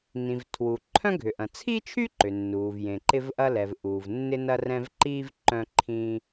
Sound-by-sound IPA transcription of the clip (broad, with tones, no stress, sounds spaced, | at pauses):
n ĩ˩ v tʰ w u˩ ǃʰ œ̃˥ ɡʱ ʏ˩ ʔ ɐ̃˩ t͡sʰ i˥ t͡ʃʰ y˥ ǃ ʏ˩ nː uː˩ v j ẽ˩ ǃ ɪ˥ v ʔ ɐ˥ l ɛ˩ v ʔ uː˩ v nː ɪ˥ n ɐ˥ r ɛ̃˥ v ǃ i˥ v ǃ œ̃˥ ǃʰ ĩː˥